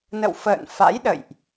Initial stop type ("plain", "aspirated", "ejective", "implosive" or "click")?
implosive